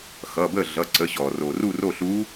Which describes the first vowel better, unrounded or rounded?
unrounded